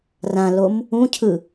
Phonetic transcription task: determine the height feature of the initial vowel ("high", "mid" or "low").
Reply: low